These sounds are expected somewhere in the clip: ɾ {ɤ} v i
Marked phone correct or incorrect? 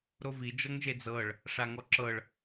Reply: incorrect: o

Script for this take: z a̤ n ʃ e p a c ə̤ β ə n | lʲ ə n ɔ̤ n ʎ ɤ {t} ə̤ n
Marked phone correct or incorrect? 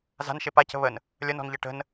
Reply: incorrect: ʈ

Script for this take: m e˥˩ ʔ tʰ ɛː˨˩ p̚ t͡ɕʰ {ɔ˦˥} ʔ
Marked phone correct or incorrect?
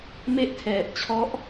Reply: correct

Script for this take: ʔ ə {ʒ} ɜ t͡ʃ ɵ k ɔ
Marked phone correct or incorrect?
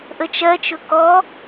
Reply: incorrect: t͡ʃ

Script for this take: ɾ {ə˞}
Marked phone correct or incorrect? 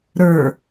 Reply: correct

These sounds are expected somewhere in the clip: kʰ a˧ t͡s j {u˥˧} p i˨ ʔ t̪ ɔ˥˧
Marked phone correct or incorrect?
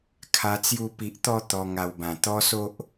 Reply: correct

